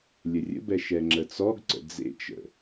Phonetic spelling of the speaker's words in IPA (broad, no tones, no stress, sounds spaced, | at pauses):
lʲ ə rʲ ə̰ b ɛ ʃ ɛ ŋ͡ǁ ə t͡s ɔ ɡ ǀ ə̰ d͡z ḛ t͡ʃ ə̰